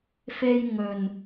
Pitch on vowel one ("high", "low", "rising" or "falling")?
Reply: high